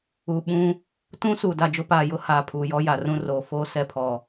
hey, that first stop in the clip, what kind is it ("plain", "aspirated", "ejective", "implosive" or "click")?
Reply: implosive